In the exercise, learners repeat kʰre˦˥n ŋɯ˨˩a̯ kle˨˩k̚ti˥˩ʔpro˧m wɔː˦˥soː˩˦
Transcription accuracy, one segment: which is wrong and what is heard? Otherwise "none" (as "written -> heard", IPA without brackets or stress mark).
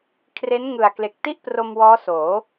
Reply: none